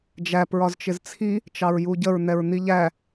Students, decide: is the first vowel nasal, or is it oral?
oral